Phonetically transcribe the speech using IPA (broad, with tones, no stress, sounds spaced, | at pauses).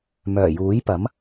m œː˨˩ j uː˨˥ j p ɐ˨˥ m